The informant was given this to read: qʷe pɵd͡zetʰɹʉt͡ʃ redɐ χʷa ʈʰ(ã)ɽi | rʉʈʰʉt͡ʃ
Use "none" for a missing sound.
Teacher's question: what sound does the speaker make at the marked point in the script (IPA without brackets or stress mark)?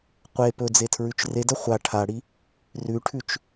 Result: a